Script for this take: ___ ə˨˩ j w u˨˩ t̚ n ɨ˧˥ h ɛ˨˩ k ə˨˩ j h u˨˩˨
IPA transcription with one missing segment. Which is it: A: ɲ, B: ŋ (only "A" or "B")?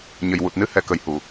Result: A